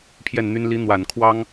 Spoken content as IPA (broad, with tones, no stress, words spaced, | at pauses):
pʰjɛ˥˩nn̪y˥n li˧˥ n̪wa˨˩n kʰwɑ˥ŋ